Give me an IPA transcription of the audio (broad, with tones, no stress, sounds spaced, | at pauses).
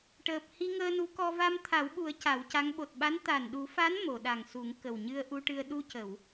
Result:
ʈ əː˨˩ p̚ h i˧ ŋ əː˧ n u˧˥ k ɔ˧ v a˧ m t̪ʰ a˨˩˦ w ɓ u˨˩˦ ə̯ c a˨˩˦ w c a˧˥ ŋ ɓ o˨˩ t̚ ɓ a˧˥ n t̪ a˨˩ n ɗ u˨˩˦ f a˧˥ n m o˨˩˨ ɗ a˨˩ ŋ s u˨˩˦ ŋ k ə˨˩ w ɲ ɨ˧ ə̯ ʔ u˧ ʈ ɨ˧ ə̯ ɗ u˧ c ə˨˩˨ w